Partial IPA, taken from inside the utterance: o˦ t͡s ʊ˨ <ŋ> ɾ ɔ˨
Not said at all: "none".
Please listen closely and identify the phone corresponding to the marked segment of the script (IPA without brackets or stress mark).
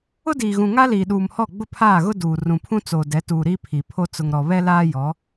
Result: ŋ